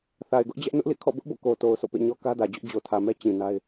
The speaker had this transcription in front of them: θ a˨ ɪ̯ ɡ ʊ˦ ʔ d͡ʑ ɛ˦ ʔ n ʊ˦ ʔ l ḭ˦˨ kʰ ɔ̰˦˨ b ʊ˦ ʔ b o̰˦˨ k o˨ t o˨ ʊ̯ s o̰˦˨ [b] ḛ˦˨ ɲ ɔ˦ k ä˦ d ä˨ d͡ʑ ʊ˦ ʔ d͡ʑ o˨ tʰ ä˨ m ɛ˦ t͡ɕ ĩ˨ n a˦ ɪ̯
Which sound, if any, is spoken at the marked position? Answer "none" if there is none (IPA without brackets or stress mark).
p